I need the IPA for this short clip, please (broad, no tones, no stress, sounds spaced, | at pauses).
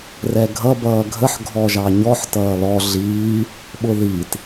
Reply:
r ɛ ɡʱ ʌ b ʌː ɡʱ ə ħ ɡʱ ɔ ʒ ɑ ɲ ɔ ħ t ʌː l ɔ ɮ iː | ɓ ʊ ð i t